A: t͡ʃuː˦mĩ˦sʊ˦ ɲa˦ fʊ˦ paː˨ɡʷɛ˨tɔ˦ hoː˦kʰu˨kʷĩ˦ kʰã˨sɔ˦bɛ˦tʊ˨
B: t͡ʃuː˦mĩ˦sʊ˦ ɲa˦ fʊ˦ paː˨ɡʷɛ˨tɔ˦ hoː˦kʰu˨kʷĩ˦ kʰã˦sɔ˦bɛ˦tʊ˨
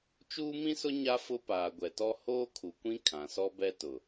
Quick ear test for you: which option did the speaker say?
A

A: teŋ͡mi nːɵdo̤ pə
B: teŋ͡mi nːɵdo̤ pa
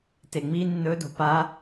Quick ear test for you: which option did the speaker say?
B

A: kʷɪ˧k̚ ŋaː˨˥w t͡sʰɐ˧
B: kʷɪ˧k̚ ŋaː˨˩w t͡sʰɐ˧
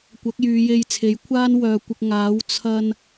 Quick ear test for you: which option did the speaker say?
A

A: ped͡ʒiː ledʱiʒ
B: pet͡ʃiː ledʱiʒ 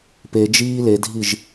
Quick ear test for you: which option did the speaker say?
A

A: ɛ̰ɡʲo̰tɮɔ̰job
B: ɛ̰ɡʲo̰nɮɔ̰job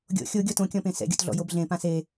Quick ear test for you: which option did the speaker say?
A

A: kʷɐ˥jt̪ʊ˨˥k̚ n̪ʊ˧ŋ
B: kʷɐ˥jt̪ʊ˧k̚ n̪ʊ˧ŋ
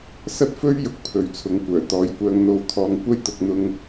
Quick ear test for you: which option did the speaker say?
B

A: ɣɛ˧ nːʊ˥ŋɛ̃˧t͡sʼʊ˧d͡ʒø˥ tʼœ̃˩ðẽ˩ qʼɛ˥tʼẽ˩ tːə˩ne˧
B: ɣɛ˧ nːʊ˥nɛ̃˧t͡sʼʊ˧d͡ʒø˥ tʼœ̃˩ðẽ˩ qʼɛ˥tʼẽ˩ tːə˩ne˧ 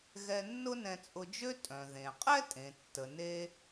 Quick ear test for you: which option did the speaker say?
B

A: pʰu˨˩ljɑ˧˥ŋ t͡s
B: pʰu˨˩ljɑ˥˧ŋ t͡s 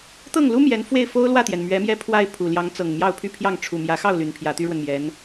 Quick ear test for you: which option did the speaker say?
A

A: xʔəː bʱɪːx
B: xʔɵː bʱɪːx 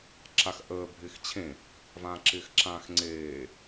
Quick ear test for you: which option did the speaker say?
A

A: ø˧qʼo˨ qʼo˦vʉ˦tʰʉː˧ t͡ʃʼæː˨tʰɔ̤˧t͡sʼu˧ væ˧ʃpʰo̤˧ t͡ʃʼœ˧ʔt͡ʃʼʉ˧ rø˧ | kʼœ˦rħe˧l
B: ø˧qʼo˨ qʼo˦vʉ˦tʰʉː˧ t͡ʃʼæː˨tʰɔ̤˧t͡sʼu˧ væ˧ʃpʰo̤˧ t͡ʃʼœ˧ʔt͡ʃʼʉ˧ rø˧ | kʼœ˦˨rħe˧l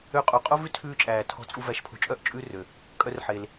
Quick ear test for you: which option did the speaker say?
A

